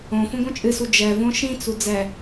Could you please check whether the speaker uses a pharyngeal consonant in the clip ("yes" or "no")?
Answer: no